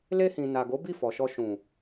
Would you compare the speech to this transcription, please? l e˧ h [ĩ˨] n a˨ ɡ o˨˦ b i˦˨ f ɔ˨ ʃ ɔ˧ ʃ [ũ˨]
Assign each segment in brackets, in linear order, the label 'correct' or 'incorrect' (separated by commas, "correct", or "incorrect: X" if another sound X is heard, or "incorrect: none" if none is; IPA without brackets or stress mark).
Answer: correct, correct